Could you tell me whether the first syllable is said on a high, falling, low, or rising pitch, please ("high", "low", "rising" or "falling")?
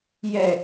falling